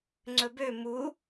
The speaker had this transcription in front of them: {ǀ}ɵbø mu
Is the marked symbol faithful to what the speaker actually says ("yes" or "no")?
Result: no